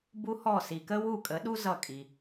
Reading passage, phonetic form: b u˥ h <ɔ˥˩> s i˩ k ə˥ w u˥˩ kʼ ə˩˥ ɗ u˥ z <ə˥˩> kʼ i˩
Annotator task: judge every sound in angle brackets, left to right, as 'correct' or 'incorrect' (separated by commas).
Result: correct, incorrect